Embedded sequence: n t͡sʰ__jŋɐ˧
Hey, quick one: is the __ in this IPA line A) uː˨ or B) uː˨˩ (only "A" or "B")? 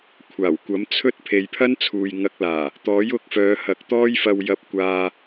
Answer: A